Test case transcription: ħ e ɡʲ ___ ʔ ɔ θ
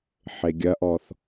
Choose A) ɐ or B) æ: A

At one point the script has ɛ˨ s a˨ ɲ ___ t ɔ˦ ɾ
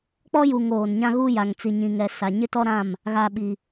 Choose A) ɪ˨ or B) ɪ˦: B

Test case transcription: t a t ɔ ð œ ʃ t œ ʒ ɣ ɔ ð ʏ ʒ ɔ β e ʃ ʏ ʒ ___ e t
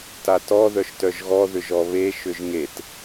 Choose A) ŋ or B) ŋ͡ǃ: A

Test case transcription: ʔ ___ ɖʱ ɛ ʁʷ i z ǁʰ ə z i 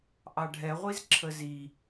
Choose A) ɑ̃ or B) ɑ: B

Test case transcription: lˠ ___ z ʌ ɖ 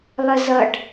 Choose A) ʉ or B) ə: B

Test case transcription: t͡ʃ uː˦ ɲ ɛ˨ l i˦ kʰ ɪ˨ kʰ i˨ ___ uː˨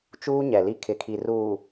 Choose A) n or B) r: B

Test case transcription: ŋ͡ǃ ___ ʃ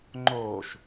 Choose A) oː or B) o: A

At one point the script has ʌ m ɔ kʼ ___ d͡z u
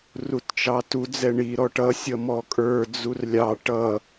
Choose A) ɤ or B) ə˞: B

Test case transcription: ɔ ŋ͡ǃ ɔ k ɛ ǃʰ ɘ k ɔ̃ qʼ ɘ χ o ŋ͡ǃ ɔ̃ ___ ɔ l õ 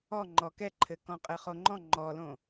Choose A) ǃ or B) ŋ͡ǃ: B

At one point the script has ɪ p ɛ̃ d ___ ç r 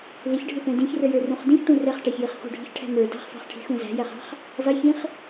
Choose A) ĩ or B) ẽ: A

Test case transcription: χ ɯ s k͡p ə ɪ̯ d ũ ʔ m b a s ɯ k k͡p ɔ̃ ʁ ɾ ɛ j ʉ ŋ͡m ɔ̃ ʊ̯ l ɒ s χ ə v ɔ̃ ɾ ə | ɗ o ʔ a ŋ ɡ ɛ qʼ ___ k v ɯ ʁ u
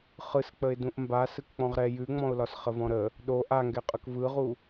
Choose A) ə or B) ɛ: A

